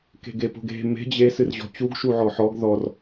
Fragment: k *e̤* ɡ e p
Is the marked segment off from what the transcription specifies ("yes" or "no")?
no